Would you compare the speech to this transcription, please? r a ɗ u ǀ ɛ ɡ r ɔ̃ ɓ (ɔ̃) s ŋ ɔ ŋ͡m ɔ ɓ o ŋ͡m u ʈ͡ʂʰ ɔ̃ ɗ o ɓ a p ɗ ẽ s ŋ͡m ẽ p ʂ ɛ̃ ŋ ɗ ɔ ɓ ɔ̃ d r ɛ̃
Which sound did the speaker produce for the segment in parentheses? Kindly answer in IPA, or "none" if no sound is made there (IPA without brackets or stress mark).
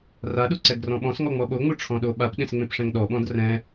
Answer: ɔ̃